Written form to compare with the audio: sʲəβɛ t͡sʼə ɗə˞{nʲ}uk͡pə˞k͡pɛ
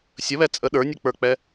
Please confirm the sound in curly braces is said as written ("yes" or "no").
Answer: yes